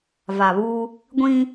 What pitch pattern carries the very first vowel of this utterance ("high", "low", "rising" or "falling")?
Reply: low